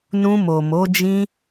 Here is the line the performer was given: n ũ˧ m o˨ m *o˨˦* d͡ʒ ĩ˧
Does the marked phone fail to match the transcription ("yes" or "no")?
no